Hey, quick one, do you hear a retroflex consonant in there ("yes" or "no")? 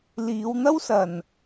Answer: no